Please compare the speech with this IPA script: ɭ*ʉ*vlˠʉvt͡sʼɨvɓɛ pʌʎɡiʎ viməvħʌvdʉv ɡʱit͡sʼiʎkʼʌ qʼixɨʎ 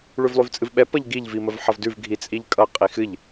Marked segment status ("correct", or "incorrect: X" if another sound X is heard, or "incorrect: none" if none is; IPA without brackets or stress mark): correct